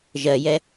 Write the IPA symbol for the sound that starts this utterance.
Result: ʒ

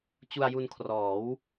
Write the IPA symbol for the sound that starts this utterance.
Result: t͡ɕ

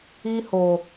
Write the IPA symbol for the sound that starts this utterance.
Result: i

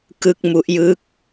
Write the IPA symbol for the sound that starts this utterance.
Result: k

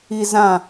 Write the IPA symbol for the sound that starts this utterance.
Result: i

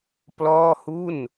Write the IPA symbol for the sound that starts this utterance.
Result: p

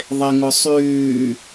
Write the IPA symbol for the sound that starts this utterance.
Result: ðˤ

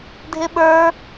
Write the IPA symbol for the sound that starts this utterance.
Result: dʱ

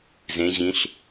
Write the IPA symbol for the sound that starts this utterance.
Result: z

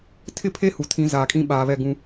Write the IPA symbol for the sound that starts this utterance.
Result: tʰ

